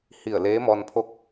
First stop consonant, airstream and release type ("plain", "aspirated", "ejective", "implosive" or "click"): aspirated